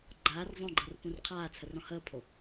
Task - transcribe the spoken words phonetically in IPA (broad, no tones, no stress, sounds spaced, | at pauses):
ɡ͡ǃ aː r zˤ õ ɡ͡ǃ ɤ r p ũ r qʰ aː t͡sʰ ə r ɔ̃ h əː pʰ o